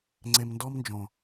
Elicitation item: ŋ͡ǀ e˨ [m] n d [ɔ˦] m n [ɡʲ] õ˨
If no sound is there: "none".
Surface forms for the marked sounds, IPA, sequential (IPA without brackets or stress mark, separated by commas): m, ɔ˦, d͡ʒ